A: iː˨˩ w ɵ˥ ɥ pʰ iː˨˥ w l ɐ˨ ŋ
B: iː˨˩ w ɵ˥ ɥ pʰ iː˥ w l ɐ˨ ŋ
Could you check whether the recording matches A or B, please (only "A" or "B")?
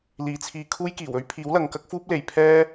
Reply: A